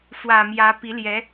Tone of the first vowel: low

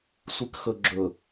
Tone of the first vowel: low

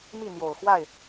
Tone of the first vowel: falling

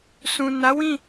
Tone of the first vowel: low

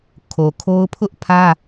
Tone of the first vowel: low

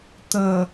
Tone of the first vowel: low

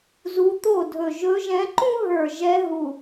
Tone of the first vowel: rising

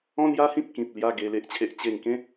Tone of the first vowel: high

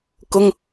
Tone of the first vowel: high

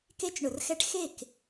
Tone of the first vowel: high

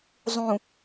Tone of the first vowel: low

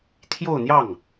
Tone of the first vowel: falling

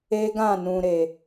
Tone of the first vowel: high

